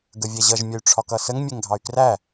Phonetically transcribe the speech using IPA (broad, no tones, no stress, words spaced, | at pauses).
ɡəvʲɛʑʌʒ mʲəy̯ʈ͡ʂʰɒkʌsəŋ mʲɛŋɡʱɑy̯kræ